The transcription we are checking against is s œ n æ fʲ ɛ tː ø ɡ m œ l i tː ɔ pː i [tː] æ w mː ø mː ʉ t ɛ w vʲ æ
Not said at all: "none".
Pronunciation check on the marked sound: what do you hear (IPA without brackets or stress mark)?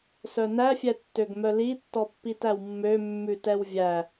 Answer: t